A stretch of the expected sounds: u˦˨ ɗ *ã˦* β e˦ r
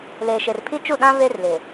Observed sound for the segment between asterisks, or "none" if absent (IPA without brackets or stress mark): ã˦